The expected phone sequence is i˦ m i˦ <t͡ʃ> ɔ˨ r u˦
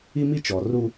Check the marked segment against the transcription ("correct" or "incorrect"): correct